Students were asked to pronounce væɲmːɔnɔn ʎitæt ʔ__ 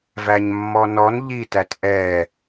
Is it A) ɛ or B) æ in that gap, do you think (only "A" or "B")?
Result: A